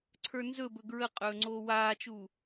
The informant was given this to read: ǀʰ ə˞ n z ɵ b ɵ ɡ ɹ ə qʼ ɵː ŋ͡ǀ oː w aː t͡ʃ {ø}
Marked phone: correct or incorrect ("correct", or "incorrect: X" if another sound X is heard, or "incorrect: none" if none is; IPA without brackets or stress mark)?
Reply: incorrect: u